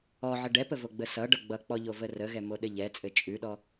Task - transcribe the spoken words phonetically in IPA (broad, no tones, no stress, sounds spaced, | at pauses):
ɔ ʕ ə ɖ ɛ p ə v o ɡ͡b ə s ʌ ɖ ʌ ɡ͡b ʌ k͡p ɔ ʎ o v ə r ə ɣ ɛ m o ɗ ɘ ʎ ɛ t͡sʼ ɘ t͡ʃʼ ʉ ɗ ɔ